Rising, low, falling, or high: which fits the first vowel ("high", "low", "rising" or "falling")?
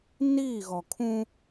falling